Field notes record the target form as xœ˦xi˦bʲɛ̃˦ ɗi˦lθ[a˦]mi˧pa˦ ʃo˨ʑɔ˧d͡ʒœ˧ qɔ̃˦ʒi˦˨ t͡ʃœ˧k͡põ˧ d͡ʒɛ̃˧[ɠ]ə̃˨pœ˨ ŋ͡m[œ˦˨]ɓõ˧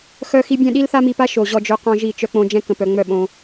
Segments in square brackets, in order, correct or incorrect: correct, incorrect, correct

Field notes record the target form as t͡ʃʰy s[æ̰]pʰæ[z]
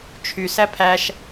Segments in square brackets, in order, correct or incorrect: incorrect, incorrect

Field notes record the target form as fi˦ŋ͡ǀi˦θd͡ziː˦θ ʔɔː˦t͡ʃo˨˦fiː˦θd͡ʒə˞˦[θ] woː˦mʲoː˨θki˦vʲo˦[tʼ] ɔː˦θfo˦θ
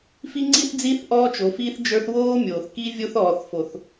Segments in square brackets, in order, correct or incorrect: correct, incorrect

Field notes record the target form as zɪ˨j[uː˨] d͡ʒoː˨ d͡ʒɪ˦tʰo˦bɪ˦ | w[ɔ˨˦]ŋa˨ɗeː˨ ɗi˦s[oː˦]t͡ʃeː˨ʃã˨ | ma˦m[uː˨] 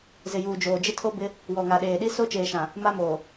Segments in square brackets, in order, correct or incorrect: correct, incorrect, incorrect, incorrect

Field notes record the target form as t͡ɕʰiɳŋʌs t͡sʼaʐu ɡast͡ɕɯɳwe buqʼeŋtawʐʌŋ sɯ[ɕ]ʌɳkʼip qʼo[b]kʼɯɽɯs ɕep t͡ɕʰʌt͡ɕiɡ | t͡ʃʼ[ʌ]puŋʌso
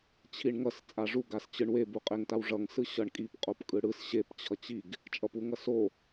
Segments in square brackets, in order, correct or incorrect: correct, incorrect, correct

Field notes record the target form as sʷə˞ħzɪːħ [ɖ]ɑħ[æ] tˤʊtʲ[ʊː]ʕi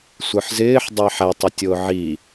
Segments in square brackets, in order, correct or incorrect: incorrect, correct, correct

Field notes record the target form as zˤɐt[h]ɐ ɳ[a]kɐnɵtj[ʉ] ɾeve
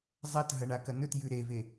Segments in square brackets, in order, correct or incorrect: incorrect, correct, correct

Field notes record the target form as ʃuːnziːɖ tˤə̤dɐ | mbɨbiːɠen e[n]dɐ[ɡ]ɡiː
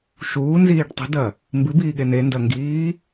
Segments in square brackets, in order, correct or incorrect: correct, incorrect

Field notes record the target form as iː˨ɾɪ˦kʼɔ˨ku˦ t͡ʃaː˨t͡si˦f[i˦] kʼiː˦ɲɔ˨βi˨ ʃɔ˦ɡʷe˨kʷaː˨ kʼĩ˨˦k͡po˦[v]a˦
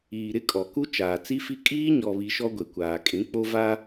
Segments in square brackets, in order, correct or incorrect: correct, correct

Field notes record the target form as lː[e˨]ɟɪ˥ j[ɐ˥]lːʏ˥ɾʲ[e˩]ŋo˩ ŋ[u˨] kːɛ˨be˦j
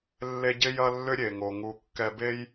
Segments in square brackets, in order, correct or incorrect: incorrect, correct, correct, correct

